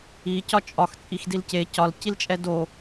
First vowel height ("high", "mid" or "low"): high